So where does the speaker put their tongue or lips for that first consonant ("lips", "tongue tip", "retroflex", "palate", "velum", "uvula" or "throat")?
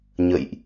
palate